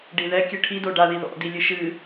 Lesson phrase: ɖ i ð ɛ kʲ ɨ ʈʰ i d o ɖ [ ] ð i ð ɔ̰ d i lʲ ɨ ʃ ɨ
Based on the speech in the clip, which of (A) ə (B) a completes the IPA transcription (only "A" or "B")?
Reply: B